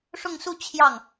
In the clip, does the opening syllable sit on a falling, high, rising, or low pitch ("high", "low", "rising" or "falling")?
falling